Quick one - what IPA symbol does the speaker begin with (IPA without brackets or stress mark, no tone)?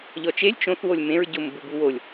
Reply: ʎ